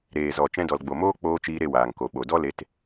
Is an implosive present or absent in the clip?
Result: present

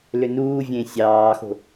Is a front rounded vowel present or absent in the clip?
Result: present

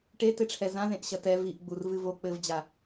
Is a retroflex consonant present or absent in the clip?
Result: present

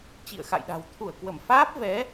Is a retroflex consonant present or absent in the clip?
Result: absent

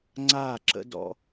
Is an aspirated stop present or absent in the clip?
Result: absent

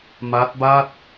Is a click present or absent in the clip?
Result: absent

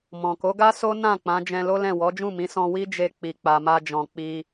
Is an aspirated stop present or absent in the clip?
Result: absent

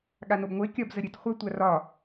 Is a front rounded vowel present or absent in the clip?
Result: absent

